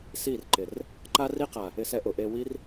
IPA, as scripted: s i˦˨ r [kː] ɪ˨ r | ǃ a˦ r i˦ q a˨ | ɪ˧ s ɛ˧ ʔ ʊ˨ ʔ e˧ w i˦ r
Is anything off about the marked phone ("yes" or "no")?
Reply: yes